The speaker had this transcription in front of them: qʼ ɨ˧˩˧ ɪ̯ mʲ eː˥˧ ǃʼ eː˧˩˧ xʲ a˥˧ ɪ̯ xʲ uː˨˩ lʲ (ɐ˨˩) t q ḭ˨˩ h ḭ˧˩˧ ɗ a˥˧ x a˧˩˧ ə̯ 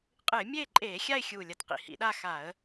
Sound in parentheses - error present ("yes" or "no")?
no